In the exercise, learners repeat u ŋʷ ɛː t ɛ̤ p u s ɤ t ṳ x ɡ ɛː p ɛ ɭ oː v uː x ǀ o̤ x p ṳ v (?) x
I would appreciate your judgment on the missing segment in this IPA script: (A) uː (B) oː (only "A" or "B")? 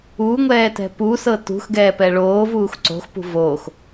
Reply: B